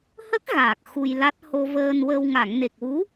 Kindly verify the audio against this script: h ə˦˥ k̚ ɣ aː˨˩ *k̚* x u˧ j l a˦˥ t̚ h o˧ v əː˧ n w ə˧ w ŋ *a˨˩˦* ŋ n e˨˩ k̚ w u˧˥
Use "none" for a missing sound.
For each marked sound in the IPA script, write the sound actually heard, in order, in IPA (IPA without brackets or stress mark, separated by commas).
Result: k̚, a˨˩˨